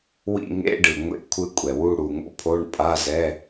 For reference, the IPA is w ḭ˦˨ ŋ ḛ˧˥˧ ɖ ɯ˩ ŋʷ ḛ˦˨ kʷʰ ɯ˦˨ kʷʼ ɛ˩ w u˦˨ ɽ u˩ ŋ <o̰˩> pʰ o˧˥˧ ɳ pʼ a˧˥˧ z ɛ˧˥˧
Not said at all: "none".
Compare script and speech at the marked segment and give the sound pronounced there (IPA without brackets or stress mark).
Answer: o̰˦˨